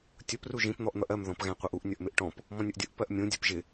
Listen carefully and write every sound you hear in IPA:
tʲʊp ruʒĩp n̪ɔʔn̪ʌʔɜm ðɔ̃pɣæ̃qʷʌʔuʔ nʲʌʔmɪʔʈɔ̃p | mɔ̃nʲʊʔdʲʊʔ pɜʔmʲũ dʲɜpʒɪ

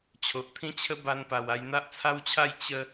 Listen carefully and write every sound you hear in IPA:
t͡ɕʰo˨ʔt̪ʰĩ˦t͡ɕʰə˦ ba˧npa˨˩wa˧j n̪a˦ʔt͡sʰa˦wt͡ɕʰa˥˧j t͡ɕə˦

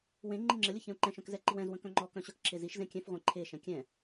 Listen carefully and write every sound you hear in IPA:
wẽ ŋ͡ǃiŋ͡ǁəlʲə çɛ̃u̯ǃɛ̃ʃœ̃k zɛǃiwɛ̃zwə̃ kœ̃ŋ͡ǃɔkœ̃ ɕœkǁʰeziʃzẽ kʲɛ̃fʁʷẽ ǃʰeʃɛ̃ kʲɛ̃

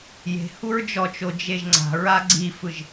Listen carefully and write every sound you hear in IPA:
je̤huɹ d͡ʒɔt͡ʃo d͡ʒeʒŋ͡ǀa̤ɹa ɡ͡ǀifɯʒ

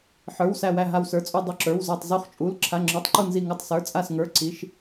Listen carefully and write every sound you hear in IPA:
ħə˞˩˧˩w sæ˧˩wæ˧˩ ɦa˧˩wsə˞˩˧˩t͡sʼu˧˩ dˤu˧˩ǁə˞˩˧˩wzə˞˧˩tˤ zu˧˩χt͡ʃʼu˩˧˩l ǁʰa˩˧˩ŋ͡ǁə˞˩˧˩tˤǃu˧˩ nzi˧˩ŋu˧˩tˤ sə˞˩˧˩ t͡sʼa˧˩sŋə˞˩˧˩ ǀi˩˧˩ʃ

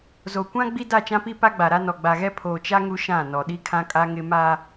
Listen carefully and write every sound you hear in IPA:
zo˨ kʷã˦ ɡ͡bi˦da˦˨t͡ʃã˦pi˦ pa˦ɡ͡ba˨ɾa˦ nɔ˨ɡ͡ba˨ɣɛ˦ pʰoː˨t͡ʃa˦ ŋu˦ ʃã˦˨ nɔ˨ɗi˦kʰã˦kʼa˦ ŋɪ˦ ma˦

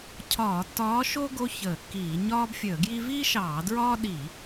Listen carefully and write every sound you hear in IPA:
cʰɒː˧˩˧tːɒː˧˥ʃo˥ ɡo˥çəː˧˩˧kːiː˧˩˧ ɲɒː˥bfʲəː˧˩˧ɡji˥ viː˥ʃɑː˧˩˧ dɹɒː˥ɗi˧˩˧

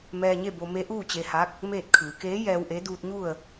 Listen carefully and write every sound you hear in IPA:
mɛː˧ɲe˥˨bo˧ me˧˥ʔuː˥˨t͡ɕe˧ha˧˥k̚ | meː˥˨t̚kʰɯː˩˧ keː˧˥ jɛː˧wʔe˧˥ duː˧t̚ɲu˥˨ə̯

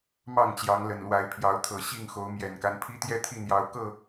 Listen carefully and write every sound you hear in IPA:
mɑ˥˨ŋt͡ɕjɑ˨˦ŋ lə˨˩nlwa˨˦ɪ̯pʰjɑ˨˦ʊ̯t̪ʰɤ˨˩ ɕi˥˨ŋxo˨˦ʊ̯ mjɛ˨˩nka˦n pʰi˦t̪jɛ˦t̪ʰi˥˨n̪jɑ˨˦ʊ̯ kɤ˥˨

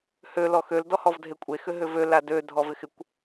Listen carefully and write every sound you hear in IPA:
hø lɔxøl dɔhɔvdʱekʷʼe xʏɦʏvø ladø dʱɔvɪxɪkʷ

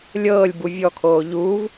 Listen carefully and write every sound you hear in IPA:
lʲɤːlʲbu vʲɔkʰoː ʎuːv

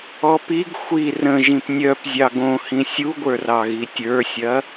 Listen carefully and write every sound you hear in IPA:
ɔpiɡ xʷi rə̃ ʒĩpnʲœp zʲɑɡõhĩ sʲuɡʷə˞rɑɣi tʲə˞sʲɐ

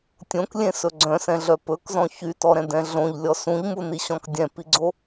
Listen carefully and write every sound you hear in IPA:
tʲõklʲẽsɵ ɡ͡ǀœ̃sɛ̃ɮœ pɵkzɔ̃ çytɔɾɛ̃dɛ̃ ɮõʎlʲɔ sũʎmuniɕɔ̃k dʲɛ̃piɡ͡ǀo

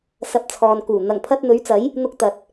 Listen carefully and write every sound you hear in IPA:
sɐ˨p̚ t͡sʰɔː˨nkuː˨˩ n̪ɐ˨˩ŋpʰɐ˧t̚ n̪ɵ˨˥ɥt͡sɐ˨˥j | n̪ʊ˧k̚ t̪ɐ˨t̚

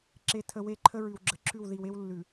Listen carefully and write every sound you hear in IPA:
ǁe˨tʰə˨ we˦ǃʰə˦ ɹʉ˨wɡ͡ǁə˨ǁʰʉ˦˨w ði˨we˦w lːʉ˨

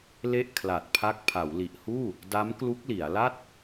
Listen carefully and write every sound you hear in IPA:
le˥˩ʔ kʰla˨˩t̚pʰa˦˥k̚ pʰa˩˦wli˨˩ʔhuː˥˩ | da˦˥mklu˦˥k̚li˩˦a̯la˥˩t̚

